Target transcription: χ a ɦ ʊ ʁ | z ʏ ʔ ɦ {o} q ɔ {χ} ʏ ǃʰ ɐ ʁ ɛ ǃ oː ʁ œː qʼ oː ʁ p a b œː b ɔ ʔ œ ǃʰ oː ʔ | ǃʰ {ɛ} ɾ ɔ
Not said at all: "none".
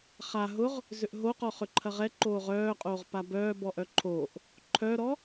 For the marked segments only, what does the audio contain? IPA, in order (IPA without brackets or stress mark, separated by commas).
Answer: o, χ, œ